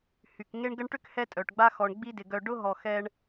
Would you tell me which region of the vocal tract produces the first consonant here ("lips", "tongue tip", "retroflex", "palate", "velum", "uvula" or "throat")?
throat